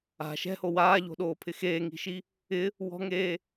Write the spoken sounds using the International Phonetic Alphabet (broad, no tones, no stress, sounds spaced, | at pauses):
a̤ ʃ ɛ̤ h o w aː ʎ o̤ ɗ oː pʰ ɪ x eː ŋ i̤ ʃ i | ɪ | w ɔ̤ ŋ eː